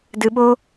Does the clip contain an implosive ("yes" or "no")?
yes